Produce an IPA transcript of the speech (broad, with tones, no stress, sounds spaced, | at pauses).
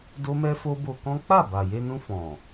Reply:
d o˦ m ɛ˦ f o˦ b o˧ k ɔ̃˦ k͡p a˦˨ b a˨ j e˧ n ũ˧ f ɔ̃˨